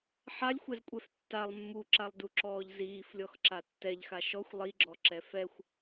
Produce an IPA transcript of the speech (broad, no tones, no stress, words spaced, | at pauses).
ħalʲxʷɛzkʷʼɛf tːalˠ mːuǁalˠduǁɔːʎ ziːflʲɔxǁa tːɛʎxa ʃɔxʷ lˠiɡ͡ǁɔǁɛ fɛxʷ